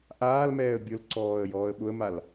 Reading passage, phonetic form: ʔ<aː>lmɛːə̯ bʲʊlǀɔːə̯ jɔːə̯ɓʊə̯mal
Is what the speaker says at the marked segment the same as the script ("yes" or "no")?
yes